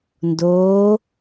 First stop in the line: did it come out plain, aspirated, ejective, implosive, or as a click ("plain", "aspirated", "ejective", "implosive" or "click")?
plain